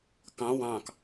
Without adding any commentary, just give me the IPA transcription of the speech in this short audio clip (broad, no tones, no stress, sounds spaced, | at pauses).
k ɑ̃ w ɑ̃ k